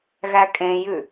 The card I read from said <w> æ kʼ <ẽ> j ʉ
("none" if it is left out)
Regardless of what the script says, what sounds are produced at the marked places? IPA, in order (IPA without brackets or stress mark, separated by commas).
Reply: ɣ, ẽ